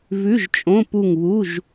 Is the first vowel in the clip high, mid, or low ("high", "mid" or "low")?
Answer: high